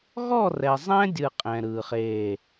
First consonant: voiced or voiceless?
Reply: voiced